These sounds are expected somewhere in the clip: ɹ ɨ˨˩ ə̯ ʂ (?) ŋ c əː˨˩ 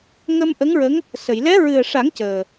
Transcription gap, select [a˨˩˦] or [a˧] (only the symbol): a˨˩˦